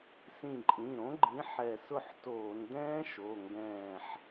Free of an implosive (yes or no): yes